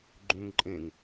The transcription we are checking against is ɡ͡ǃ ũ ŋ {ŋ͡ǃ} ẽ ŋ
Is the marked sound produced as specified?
no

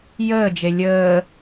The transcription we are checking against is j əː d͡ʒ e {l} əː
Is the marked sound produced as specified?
no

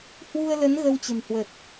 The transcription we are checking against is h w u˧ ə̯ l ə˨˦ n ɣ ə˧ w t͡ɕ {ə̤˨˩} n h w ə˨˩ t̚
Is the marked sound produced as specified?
yes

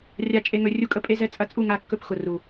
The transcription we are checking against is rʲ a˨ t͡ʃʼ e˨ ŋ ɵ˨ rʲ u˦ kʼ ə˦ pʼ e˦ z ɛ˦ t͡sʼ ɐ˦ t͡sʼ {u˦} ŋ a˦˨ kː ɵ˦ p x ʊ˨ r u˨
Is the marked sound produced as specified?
no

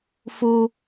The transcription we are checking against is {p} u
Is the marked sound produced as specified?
no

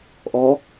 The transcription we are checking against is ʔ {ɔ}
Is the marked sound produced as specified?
yes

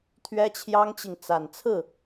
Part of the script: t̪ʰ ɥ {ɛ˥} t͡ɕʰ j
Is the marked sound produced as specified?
yes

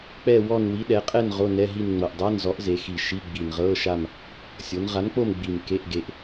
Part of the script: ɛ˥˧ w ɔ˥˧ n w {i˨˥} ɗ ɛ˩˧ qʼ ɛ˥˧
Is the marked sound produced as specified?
yes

